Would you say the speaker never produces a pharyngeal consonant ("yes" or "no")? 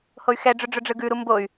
yes